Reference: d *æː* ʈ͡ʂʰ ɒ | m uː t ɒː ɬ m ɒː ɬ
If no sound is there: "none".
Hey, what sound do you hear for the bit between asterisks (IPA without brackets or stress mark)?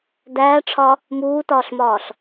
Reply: æː